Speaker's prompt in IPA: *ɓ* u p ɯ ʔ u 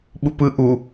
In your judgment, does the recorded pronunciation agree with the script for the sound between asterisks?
yes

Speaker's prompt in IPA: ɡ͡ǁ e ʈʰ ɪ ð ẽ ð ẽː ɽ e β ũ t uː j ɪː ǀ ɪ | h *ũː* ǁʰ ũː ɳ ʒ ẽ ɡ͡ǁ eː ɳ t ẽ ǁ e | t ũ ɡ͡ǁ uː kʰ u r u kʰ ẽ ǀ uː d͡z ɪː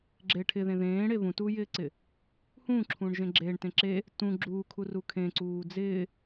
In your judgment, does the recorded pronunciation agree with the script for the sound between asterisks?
yes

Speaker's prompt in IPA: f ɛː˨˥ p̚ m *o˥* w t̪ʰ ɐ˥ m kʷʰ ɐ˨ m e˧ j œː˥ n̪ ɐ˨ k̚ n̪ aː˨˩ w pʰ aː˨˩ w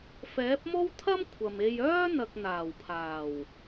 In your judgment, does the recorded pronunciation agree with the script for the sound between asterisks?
yes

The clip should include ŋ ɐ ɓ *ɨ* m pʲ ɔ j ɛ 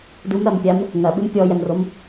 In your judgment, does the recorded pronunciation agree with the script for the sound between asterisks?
yes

